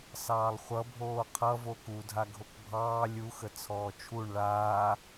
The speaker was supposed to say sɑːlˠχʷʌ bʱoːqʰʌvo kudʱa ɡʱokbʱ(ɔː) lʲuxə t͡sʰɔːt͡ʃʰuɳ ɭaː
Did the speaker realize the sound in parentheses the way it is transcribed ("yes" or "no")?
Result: no